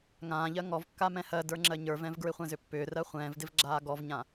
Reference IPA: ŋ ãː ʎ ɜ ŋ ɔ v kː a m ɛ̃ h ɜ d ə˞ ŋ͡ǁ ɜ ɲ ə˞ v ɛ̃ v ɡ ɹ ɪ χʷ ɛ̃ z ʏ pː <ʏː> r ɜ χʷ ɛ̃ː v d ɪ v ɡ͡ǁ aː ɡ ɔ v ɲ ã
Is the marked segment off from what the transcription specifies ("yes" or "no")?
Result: no